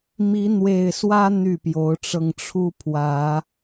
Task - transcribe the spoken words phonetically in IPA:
mi˨˦n̪we˨˩ɪ̯swä˦ n̪y˥˨pjo˨˦ʊ̯ʈ͡ʂɤ˧ŋ ʈ͡ʂʰu˦pʰwä˨˦

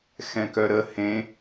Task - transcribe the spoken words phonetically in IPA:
xɛ̃kœɾə hẽ

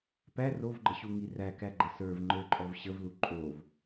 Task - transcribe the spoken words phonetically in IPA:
pæ rovɡ͡ǃəɕuŋi rækæɡ͡ǃə sə˞v ŋ͡ǃə˞ǃʼɔv ɕəvlu ǃʼov

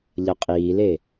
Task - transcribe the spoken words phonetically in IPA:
ʎʌqʼiːle

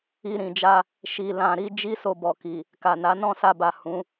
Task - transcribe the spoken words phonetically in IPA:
i˧ɾĩ˨d͡ʒa˧ | ʃi˧lã˧ɾi˦ d͡ʒi˦so˧bɔ˨ki˨ | ka˨na˨˦ nɔ̃˦˨sa˧ba˨ hũ˨˦

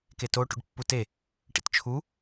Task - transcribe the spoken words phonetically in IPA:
keto ʈṵɖpːute | ʈḭtt͡ʃʰu

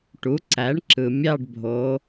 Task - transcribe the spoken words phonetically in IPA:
ʈu˩˥ǀæ˩˥ɳǁɯ˩ mʲɑ˦˨ɖbʱo˩˧

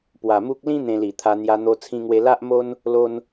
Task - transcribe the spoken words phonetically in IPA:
pwa˨˩mu˦k̚ lĩ˦ n̪ẽ˧li˨˩t̪ʰa˧ n̪ja˧ n̪o˧ t͡sʰĩ˧ŋwe˧ la˦ʔmo˦n | lo˧n

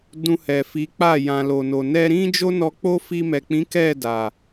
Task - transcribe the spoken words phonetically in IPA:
dũ˧hɛ˨fi˨˦k͡pa˦˨ jã˨lo˨no˨ nɛ˧ɾĩ˦d͡ʒo˦ nɔ˧k͡po˦ fi˧mɛ˨k͡pĩ˨˦ kɛ˦˨ da˨

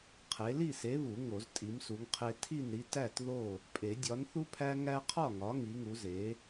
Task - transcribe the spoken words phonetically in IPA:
qʰe˨˥ li˥˨se˨˥βu˨˩˦ ŋo˨˩˦ztʼi˨˥msu˨˥ŋqʰe˦ tʰi˥˨nɾi˦ tæ˥˨t ðo˥˨ | pʼe˨˩˦dʲɒ˨˥nθu˦pʰæ˦ ŋæ˦qʰɒ˥˨ŋɒ˨˥ ŋi˨˥ŋu˨˥ze˨˥

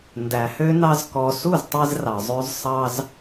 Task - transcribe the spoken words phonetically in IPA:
ndæ˨hø˦nɑ˦z kɔ˧ su˦˨ztˤe˧zrɑ˨zˤø˧z sˤɑ˦z

